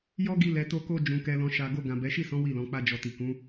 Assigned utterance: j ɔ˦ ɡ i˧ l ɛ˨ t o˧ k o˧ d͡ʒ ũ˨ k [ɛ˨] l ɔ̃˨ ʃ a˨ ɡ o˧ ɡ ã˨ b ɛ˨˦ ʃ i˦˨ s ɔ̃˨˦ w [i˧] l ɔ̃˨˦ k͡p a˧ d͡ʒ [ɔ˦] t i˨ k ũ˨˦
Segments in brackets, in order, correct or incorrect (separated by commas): correct, incorrect, incorrect